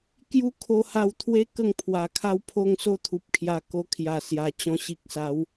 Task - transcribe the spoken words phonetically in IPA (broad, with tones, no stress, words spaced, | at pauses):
kju˦ kʰo˧ha˧wt̪ʰwe˦ kə˥˧ŋpʰwa˨˩kʰa˥˧wpʰo˥˧ŋ so˦ t̪ʰu˨p̚kʰja˧ ko˧ kʰja˨˩sja˨˩ t͡ɕɔ̃˧ɕi˨k̚sa˨˦w